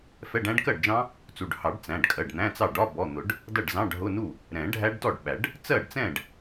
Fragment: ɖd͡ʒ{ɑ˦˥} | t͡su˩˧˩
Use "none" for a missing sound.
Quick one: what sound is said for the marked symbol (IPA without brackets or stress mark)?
ɑ̃˦˥